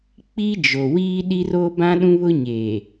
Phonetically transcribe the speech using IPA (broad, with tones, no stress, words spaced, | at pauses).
k͡pi˦ d͡ʒo˨ wiː˦ɗi˦ro˦ bã˦ɗũ˦βʊ˦ ɲeː˨